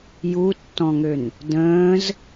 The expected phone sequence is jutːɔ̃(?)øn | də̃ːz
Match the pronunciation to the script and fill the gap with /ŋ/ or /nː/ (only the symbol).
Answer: ŋ